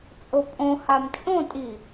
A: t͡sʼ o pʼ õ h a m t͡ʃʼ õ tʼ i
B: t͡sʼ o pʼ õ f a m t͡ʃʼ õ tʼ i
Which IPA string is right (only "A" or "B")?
A